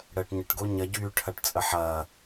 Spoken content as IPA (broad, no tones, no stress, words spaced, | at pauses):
ɽəːʈɲəʈ ɡoɲɐɟyː ʈʰɐʈt͡sʼəħɐː